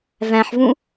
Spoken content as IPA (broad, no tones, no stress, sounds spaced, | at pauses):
v æ̃ ħ v ũ